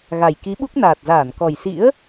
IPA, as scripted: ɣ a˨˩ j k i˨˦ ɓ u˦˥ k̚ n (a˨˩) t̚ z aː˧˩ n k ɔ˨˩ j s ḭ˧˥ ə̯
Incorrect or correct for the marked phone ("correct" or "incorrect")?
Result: incorrect